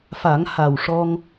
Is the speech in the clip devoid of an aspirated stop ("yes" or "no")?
yes